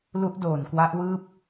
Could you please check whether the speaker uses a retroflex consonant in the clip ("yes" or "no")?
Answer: no